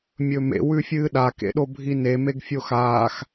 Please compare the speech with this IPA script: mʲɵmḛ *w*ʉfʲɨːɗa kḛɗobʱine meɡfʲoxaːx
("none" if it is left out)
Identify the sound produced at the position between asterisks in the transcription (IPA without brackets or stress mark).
w